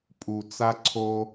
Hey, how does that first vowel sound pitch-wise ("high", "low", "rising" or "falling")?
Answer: low